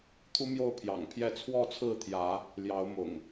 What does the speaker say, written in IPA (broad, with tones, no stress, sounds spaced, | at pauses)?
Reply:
t̪ʰ u˦ m j o˥˨ ʊ̯ pʰ j ɑ̰˨˩ ŋ pʰ j ɛ˥˨ t͡sʰ w ɔ˥˨ t͡sʰ ɹ̩˥˨ t̪ʰ j ä˨˦ | l j ɑ˨˦ ʊ̯ m ʊ̰˨˩ ŋ